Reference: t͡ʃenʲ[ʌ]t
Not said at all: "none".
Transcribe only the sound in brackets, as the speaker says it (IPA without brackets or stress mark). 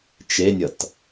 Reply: ʌ